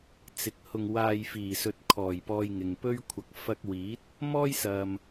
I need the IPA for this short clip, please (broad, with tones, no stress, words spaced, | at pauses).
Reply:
t͡sɪ˨˥k̚hʊ˧ŋwaː˧j fiː˨˩sɵ˨t̚kʰɔː˨˩jpɔː˨j ŋɪ˨ŋpɵ˥ɥkʷʰɐ˧k̚ fɐ˥k̚ wiː˨˥t̚ | mɔː˥jsɐ˨m